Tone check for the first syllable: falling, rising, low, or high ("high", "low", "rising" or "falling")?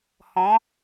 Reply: rising